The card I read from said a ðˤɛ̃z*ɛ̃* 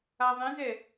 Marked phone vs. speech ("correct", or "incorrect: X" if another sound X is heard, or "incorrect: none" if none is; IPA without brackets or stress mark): incorrect: ɛ